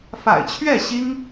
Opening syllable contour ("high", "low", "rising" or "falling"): low